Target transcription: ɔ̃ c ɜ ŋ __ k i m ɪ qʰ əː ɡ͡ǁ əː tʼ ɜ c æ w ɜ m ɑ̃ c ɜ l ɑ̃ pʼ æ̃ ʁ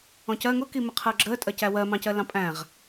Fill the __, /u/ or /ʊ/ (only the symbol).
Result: ʊ